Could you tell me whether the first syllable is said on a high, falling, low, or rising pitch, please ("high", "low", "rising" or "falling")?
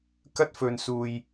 high